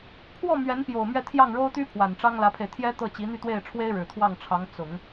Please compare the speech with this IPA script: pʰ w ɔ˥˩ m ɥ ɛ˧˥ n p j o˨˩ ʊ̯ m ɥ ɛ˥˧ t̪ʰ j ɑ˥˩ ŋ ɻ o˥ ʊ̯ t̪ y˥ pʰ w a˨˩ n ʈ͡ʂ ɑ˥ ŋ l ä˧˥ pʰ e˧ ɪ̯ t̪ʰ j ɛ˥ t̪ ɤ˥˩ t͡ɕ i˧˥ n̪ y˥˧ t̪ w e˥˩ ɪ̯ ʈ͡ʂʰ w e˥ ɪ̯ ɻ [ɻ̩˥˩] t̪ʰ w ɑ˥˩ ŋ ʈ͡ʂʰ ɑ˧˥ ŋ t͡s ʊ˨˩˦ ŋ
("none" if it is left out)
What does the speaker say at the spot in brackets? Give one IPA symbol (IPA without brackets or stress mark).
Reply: ɻ̩˨˩